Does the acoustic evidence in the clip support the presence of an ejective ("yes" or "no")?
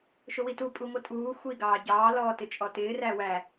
yes